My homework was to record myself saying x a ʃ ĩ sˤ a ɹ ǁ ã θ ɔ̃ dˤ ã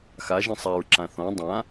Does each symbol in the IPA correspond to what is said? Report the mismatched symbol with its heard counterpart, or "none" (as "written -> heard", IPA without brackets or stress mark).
ʃ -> ʒ